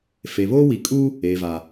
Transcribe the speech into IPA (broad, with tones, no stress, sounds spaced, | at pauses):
f e˨ β oː˦ w i˨ kʼ u˦ | eː˨ v a˨